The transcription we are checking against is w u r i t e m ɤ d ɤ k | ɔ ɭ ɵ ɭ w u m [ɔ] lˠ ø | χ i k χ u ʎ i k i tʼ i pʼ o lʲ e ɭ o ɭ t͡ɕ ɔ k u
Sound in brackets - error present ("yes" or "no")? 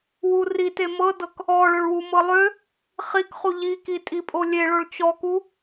yes